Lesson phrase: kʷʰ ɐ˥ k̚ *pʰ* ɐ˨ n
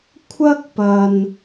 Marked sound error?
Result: yes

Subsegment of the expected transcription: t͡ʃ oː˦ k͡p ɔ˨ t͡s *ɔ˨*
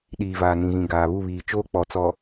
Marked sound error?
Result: no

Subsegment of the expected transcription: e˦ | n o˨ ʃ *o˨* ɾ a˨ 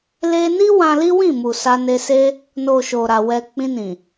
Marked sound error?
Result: no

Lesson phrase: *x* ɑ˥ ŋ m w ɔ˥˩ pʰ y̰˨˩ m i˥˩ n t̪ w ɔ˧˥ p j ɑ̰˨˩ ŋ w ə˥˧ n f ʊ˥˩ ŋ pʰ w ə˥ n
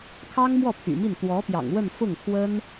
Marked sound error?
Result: yes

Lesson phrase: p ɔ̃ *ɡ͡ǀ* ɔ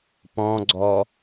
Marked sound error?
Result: no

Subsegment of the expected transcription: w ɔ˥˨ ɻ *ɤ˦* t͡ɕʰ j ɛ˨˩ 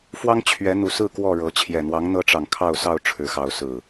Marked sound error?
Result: yes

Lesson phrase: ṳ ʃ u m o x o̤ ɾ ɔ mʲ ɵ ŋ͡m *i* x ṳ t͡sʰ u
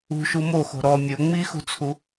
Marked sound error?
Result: no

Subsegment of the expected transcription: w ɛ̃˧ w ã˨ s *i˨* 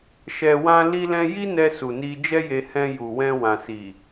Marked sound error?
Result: no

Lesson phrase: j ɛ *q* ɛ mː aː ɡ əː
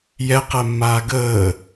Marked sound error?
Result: no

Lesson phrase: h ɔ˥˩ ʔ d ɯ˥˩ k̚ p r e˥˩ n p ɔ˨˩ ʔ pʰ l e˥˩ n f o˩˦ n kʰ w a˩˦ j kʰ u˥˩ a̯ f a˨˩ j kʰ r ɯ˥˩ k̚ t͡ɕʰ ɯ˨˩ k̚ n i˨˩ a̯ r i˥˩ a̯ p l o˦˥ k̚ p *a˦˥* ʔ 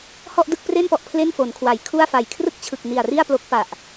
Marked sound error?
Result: yes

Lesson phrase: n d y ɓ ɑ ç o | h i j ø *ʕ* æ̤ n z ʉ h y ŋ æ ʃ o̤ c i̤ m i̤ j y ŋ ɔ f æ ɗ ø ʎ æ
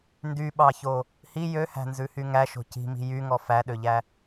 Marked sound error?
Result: yes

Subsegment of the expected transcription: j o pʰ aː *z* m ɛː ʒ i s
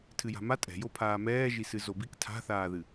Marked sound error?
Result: yes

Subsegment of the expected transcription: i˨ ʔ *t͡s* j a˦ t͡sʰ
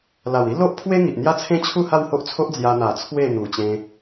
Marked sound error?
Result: yes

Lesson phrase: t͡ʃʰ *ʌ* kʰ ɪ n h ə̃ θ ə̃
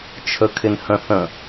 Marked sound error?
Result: yes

